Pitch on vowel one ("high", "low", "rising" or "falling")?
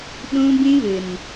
high